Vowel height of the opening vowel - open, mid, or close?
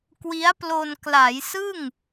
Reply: close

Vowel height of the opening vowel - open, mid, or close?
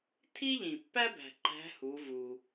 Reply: close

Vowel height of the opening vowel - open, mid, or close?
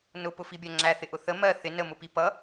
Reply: close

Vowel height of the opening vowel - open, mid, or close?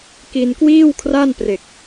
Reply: close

